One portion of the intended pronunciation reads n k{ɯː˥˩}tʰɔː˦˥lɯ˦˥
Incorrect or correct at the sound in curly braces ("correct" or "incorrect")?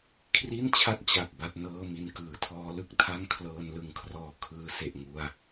incorrect